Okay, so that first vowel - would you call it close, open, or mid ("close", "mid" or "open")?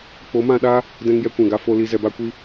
mid